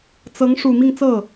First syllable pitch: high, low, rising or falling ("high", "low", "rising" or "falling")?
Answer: rising